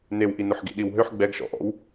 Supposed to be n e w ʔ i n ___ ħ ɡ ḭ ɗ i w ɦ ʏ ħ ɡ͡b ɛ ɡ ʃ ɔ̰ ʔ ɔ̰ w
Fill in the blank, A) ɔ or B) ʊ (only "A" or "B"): B